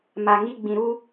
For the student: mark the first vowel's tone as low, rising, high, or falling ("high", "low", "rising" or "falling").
low